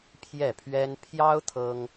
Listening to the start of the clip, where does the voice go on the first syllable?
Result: falling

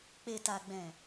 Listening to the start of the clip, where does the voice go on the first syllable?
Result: low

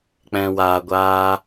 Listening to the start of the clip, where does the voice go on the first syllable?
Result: low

